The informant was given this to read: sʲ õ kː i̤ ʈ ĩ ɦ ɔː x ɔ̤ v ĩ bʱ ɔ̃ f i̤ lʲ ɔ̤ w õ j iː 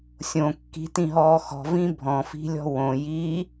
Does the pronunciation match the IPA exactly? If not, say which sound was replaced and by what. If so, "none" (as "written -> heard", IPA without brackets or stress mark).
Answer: ʈ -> t